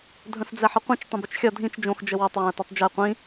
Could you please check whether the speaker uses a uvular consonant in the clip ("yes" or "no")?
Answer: yes